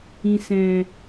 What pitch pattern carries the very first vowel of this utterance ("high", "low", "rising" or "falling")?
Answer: low